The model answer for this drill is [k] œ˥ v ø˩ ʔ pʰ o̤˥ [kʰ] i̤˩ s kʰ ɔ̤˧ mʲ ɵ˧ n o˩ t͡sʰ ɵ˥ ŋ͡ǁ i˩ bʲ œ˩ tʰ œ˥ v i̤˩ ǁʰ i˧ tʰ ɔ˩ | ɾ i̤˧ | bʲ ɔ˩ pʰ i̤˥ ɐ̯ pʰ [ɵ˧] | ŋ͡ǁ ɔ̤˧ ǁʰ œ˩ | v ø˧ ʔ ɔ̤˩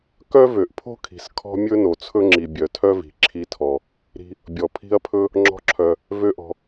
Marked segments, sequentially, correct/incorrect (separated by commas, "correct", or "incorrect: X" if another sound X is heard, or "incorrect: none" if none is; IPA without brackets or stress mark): correct, correct, incorrect: ɵ˥